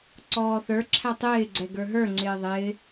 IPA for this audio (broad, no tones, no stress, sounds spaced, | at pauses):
ǀ ɔː θ ə˞ ǁʰ æ tˤ ɪː ɡ͡ǀ ɛ ɡ ə˞ ɦ ə˞ ŋ͡ǀ ɪː ðˤ ɪː